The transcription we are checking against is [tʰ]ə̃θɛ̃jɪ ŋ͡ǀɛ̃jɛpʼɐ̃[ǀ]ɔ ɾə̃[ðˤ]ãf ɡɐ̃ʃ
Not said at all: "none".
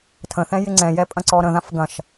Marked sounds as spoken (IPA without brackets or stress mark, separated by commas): tʰ, ǀ, ð